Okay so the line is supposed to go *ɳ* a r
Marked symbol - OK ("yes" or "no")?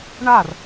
yes